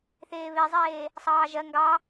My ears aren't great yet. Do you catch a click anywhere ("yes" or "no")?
no